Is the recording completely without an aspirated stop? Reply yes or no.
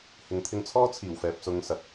no